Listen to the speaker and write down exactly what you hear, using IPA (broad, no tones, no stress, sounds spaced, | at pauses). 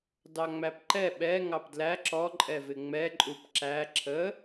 d ɑ ŋ͡m æ p ǃ ɛ ɓ ɛ ŋ ɑ p d l æ ǁ ɔ ǃʼ ɛ v ɪ ŋ͡m ɛ ǃʼ u p ǁ æ ǁʰ ə